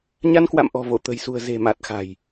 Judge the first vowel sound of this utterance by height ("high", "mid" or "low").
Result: low